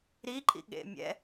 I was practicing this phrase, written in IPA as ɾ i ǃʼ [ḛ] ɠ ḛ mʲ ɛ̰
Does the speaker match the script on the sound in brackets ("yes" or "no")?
no